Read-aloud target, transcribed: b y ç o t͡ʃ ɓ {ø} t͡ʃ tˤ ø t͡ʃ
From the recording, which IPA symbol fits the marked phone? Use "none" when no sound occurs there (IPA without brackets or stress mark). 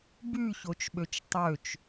ø